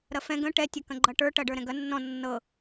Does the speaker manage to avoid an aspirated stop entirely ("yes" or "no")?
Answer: yes